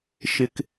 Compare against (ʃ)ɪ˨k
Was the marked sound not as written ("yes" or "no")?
no